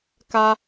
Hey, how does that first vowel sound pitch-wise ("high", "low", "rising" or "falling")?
high